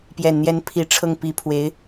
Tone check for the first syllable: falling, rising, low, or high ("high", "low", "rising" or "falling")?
low